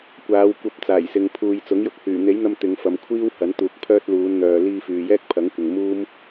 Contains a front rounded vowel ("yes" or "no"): yes